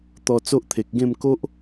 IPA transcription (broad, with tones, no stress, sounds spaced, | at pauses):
t̪ ɔ˧ t͡s o˦ ʔ t̪ʰ e˨ k̚ ɡ ẽ˥˧ m k o˦ ʔ